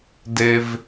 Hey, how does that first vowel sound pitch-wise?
high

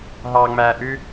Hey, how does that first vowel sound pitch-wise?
high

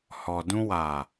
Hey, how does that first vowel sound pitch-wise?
low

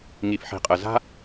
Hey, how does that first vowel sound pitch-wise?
low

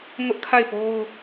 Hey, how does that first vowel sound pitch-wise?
high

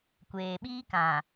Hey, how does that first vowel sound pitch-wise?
low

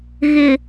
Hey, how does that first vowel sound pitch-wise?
low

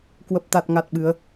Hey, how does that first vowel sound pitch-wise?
low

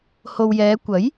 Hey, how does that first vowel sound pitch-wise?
low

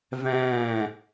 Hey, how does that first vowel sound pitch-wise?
falling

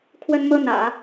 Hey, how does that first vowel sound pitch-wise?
high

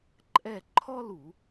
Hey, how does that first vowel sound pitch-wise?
falling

